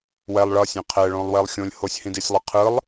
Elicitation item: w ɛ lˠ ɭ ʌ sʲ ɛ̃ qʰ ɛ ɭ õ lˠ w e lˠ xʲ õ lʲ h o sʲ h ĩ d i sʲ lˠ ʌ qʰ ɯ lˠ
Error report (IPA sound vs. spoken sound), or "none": none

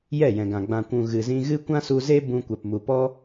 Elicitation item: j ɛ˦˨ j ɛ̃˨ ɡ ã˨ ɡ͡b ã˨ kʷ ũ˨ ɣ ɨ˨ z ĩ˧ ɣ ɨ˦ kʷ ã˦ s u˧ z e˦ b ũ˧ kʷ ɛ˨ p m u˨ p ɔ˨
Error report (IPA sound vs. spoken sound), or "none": ɔ˨ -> ɔ˦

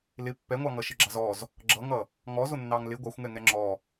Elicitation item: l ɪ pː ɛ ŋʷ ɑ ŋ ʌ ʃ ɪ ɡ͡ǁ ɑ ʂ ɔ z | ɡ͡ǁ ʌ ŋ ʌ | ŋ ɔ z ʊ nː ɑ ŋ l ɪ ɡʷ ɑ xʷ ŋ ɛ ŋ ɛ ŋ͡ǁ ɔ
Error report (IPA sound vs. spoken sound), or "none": ʂ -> z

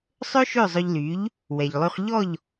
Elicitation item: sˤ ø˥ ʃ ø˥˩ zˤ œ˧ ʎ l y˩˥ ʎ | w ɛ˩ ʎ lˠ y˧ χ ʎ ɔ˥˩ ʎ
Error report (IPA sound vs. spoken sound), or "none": none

